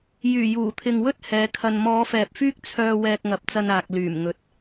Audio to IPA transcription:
j yː˨˩ j uː˨˩ t̪ʰ ɪ˨ ŋ w ɵ˥ t̚ h ɛː˨˧ kʰ ɐ˧ n m ɔː˨˧ f ɛː˨ p̚ f yː˥ k̚ t͡sʰ œː˧ w ɛː˧ k̚ ŋ ɐ˨˥ p̚ t͡s ɐ˧ n aː˨ k̚ l yː˨˩ m ŋ ɵ˨ t̚

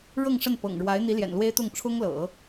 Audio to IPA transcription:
ɻ ɤ˥˧ ŋ ʂ ə˥˩ n p ɤ̰˨˩ ŋ ɻ w a˧˥ ɪ̯ n̪ i˧˥ l j ɛ̰˨˩ n l w e˥ ɪ̯ t̪ ʊ˥˩ ŋ ʈ͡ʂʰ ʊ˥ ŋ l ɤ̰˨˩˦

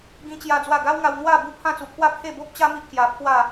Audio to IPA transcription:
ɡ ĩ˦ t͡ɕ j a˦ d͡z w a˥˧ ɡ a˦ w ŋ a˧ w n̪ w a˥˧ b u˥˧ pʰ ã˥˧ t͡s u˧ pʰ w a˥˧ pʰ e˥˧ b o˦ p̚ t͡ɕ a˦ m i˦ ʔ k j a˧ pʰ w a˥˧

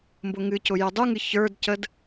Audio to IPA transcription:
m b ʊ ŋ ɨ c ʊ j ʊ dˤ u ŋ ɨ ç ə˞ d c ə d

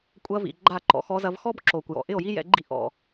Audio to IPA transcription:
kʷʼ ɐ˧ v ḭ˨ ɡ͡ǃ a˦˨ ǃ ɔ̰˨ x ɔ˧ z ɐ˧ v x ɔ˦ b ǁ o˨ kʷ j ɔ̰˨ ʔ ɪ˦˨ o̯ j i˦ j ɛ̰˧ ɡ͡ǃ ḭ˦ ʔ ɔ̰˧

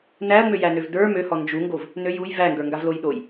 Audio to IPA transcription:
n æ ɐ̯ ŋ͡m ø j æ n ø v d ə˞ m ø h ɔ n d͡ʒ u ŋ ɡ o v | n ø j u j v æ ŋ ɡ ə˞ ŋ ɡ a v l o j ɗ o j

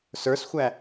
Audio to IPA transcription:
s ə˞ s xʷ æ

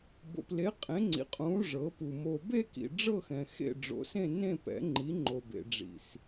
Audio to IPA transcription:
b o̰˨ p l e˨˥ qʼ ẽ˨˥ ŋ͡ǀ ḭ˨ qʼ ũː˨˥ ʐ ɤ˨˥ p u˨ m o˨ b e˥˧ k ḭ˨ ɖ͡ʐ ɤ˥˧ x ɛ̃˨ x ḛ˥˧ ɖ͡ʐ o̰˨˥ s ẽ˥˧ n ẽ˥˧ p ɛ̰˨˥ ŋ͡ǃ i˨˥ ŋ͡ǃ o˨ b ḛ˨ ɖ͡ʐ ḭ˨ s

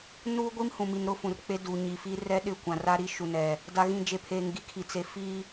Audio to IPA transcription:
n uː˦ ɡʷ i˦ m h ũ˨ m i˨ n ɾ ʊ˦ f ũ˨ r k͡p e˦ d u˨ ɲ i˨ f i˦ r ɛ˦ ɗ ɪ˦˨ kʷ ã˨ r a˦ ɾ i˦ ʃ u˨ n ɛ˨ | d a˨ ɣ ĩ˨ d͡ʒ e˨ pʰ eː˨ ŋ ɡ i˦˨ kʰ i˨ t͡s e˨ f i˦

